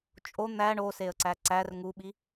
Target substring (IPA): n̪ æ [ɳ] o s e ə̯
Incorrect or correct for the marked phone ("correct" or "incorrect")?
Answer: correct